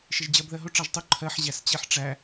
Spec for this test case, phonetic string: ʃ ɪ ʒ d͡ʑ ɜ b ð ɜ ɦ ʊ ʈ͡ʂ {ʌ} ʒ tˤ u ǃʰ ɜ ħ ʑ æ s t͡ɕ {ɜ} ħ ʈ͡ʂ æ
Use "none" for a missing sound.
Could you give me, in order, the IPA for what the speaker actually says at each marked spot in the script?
ɑ, ɛ

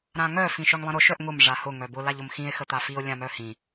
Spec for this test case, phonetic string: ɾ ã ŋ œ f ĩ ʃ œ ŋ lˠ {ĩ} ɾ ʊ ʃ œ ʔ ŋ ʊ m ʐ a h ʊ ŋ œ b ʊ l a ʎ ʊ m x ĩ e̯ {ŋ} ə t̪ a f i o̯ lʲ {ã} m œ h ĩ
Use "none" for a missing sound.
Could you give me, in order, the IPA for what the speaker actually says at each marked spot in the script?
ĩ, x, ã

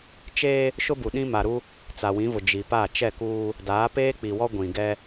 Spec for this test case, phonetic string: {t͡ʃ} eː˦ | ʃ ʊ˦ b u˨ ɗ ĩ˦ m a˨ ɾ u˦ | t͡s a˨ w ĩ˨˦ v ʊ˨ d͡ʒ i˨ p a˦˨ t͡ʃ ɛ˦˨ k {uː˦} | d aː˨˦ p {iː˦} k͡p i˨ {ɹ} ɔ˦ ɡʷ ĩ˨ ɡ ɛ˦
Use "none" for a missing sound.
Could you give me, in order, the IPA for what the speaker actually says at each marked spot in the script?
t͡ʃ, uː˦, eː˦, w

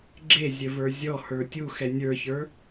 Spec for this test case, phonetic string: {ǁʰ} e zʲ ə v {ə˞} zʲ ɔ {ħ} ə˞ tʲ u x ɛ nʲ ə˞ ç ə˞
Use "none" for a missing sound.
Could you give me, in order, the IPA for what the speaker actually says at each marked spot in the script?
ɡ͡ǁ, ə˞, h

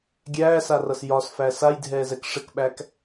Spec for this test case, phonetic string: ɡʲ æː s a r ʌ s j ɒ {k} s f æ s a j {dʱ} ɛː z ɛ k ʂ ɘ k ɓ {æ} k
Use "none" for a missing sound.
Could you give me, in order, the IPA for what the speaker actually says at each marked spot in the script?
none, dʱ, æ

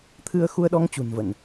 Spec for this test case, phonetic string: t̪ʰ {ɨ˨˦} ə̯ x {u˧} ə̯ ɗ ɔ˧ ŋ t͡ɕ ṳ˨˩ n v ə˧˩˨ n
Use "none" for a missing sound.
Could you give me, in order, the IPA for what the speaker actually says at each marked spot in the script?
ɨ˧, u˧

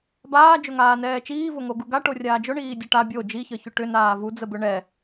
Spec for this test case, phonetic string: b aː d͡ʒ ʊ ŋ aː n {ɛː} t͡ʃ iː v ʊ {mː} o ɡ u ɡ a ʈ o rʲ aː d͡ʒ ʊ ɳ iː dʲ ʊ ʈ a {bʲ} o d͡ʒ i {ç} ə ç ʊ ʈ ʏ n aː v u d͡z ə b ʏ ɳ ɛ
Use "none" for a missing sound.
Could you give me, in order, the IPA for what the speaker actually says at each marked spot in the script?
ɛː, ŋ, bʲ, ç

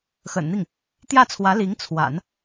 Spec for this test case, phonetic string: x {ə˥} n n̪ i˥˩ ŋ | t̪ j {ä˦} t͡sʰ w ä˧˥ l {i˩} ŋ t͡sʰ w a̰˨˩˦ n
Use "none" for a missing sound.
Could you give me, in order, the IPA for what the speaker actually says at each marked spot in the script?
ə̰˨˩, ä˥˩, i˧˥

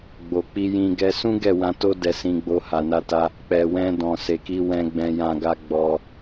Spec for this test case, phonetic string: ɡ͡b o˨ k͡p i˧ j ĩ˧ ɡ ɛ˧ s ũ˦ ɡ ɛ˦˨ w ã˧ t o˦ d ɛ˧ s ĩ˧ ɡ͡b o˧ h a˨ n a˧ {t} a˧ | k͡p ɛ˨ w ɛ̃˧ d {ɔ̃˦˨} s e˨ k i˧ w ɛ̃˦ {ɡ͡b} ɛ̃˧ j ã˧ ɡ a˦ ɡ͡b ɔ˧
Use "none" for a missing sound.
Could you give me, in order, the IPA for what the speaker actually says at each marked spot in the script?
t, ɔ̃˨, ɡ͡b

